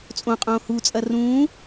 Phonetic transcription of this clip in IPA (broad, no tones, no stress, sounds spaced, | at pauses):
t͡sʼ õ qʼ õː h u t͡sʼ ɐ r ũː